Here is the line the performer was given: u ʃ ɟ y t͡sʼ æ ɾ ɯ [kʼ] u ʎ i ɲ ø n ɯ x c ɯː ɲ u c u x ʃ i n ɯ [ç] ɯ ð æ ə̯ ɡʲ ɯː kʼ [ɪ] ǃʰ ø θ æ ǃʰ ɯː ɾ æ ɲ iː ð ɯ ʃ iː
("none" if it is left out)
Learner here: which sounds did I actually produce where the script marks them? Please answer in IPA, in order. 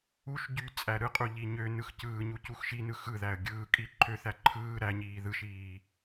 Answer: qʼ, x, i

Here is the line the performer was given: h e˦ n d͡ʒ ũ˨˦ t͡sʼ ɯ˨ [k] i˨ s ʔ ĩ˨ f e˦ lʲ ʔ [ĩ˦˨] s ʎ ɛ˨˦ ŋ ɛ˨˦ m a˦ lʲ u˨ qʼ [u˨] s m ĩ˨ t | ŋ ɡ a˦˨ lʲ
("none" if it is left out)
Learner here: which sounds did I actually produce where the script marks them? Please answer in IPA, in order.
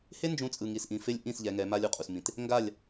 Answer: ŋ, ĩ˦˨, u˨

